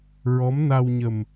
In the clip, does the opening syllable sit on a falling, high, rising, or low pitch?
rising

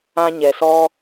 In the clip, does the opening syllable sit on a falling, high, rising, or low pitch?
high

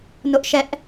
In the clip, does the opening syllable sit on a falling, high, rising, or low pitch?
high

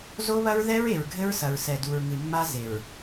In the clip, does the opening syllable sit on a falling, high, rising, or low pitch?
high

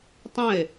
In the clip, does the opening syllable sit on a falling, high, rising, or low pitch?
falling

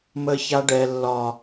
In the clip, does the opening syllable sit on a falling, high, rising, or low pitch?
high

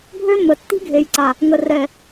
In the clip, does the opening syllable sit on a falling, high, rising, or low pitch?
high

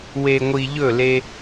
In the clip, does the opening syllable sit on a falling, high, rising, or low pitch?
low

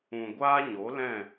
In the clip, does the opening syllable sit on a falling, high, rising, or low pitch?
low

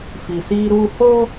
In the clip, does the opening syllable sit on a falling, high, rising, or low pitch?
low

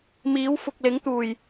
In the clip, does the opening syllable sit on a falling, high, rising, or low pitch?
rising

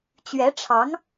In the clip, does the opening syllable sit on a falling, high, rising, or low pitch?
rising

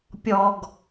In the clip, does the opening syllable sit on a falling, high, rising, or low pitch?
low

